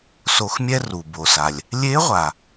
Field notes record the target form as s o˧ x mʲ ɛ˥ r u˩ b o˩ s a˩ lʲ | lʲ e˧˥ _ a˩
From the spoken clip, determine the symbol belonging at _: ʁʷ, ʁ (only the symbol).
ʁʷ